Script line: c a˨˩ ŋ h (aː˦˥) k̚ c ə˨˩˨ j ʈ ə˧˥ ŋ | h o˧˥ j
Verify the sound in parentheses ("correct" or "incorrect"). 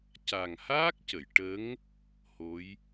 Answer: correct